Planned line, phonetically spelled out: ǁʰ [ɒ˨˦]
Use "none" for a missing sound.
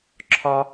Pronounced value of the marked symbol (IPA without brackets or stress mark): ɒ˦